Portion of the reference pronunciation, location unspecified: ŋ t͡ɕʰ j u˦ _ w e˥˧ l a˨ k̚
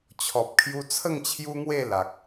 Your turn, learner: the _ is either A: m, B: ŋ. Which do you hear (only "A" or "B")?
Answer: B